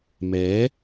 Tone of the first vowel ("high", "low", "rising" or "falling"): rising